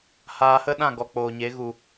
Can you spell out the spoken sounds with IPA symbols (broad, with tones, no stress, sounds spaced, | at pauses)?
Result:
h aː˧ h ə˦ ɗ ã˦˨ ɡ ɔ˨ k͡p oː˨ ɲ e˨˦ ɣ u˨